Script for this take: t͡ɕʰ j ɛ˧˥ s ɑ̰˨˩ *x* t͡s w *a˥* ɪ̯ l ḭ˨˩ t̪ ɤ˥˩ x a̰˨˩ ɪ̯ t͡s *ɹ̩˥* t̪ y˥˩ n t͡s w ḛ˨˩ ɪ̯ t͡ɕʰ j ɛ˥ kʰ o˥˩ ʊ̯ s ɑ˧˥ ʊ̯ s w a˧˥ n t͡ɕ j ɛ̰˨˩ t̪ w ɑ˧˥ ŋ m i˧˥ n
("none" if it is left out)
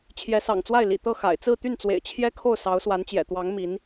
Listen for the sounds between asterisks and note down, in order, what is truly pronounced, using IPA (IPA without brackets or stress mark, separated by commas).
ŋ, a˥˩, ɹ̩˥˧